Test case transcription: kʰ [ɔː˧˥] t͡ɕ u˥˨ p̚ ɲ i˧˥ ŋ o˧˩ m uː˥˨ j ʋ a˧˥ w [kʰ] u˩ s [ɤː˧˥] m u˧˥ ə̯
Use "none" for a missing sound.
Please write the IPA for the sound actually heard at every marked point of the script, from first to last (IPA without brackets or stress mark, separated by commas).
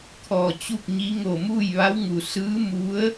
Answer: ɔː˩, ŋ, ɯː˧˥